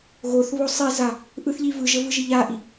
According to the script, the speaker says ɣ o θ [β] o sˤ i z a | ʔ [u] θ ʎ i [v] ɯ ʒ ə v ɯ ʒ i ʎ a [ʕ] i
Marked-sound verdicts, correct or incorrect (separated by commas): correct, incorrect, correct, incorrect